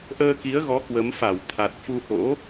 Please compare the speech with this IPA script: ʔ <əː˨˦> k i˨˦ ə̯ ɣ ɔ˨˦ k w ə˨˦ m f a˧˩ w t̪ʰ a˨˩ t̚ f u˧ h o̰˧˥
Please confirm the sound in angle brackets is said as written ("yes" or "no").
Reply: no